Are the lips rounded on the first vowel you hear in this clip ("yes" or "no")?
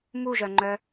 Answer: yes